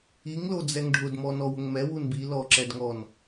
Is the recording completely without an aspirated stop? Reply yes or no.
yes